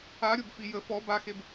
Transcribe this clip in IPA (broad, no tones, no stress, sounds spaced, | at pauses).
a ɾʲ o b f i j ə f ɔ b a x e b